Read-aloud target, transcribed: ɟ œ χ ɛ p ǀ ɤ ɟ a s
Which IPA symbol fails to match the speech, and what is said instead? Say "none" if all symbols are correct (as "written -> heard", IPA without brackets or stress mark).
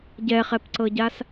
œ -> ɛ